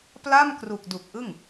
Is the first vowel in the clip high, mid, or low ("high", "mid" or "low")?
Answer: low